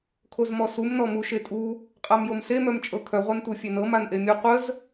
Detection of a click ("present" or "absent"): absent